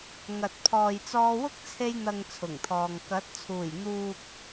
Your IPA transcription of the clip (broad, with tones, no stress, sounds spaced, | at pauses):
ŋ ɐ˨ t̚ pʰ ɔː˨ j t͡s ɔː˧ w ʊ˥ k̚ t͡sʰ e˧ j n̪ ɐ˨ ŋ t͡sʰ ʊ˨˩ ŋ t̪ʰ ɔː˨ ŋ k ɐ˨˥ t̚ t͡sʰ uː˨˩ j n̪ uː˨ k̚